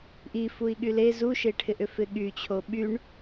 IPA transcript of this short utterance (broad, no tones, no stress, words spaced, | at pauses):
ʔifui̯ ɠyle zuʃeʈʰɪʔʏ fɪɠyt͡ɕʰo ɓyɳ